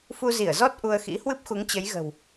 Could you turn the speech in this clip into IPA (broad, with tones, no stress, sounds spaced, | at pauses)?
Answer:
f u˧ z i˧˩ ə̯ z ɔ˦˥ t̚ ʔ u˧ ə̯ x ḭ˧˥ h w ɨ˦˥ p̚ x u˨˦ ŋ t͡ɕ ə˨˦ j ɣ ə̤˨˩ w